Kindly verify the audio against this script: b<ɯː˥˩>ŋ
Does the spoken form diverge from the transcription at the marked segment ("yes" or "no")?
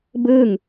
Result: no